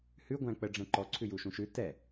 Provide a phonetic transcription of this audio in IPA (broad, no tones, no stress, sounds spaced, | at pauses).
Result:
h ʉ ɡʷ æ̃ k͡p ə ɖ͡ʐ ɛ̃ ǃ ɔ ǀʰ ʉ j u ʃ ũ ʃ ʉ t ɛ